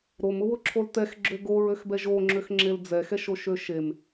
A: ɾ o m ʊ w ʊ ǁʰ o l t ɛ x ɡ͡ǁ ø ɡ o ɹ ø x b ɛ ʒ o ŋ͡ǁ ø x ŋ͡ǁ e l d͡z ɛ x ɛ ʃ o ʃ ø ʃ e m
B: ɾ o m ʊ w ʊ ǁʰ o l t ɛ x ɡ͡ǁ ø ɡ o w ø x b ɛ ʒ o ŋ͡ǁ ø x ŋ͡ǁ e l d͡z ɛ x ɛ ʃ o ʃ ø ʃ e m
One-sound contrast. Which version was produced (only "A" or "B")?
A